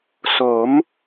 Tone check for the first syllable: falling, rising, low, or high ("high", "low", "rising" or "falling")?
rising